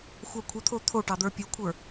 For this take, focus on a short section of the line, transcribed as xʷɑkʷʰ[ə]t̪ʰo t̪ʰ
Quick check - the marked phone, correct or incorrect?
correct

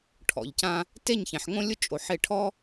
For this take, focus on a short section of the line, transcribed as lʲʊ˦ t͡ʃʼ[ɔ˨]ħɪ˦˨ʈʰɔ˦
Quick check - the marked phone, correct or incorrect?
incorrect: o˨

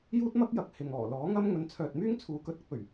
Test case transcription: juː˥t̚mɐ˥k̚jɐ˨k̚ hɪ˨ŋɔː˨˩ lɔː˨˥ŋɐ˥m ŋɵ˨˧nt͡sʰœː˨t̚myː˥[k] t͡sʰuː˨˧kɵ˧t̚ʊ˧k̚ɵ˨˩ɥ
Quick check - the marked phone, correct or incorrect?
incorrect: ŋ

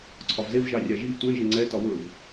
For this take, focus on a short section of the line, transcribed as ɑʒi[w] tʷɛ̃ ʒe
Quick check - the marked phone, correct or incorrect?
incorrect: v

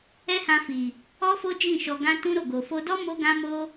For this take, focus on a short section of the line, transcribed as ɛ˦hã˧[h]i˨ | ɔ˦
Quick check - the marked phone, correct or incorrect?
incorrect: f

